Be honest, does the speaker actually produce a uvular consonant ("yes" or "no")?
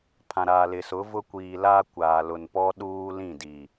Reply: no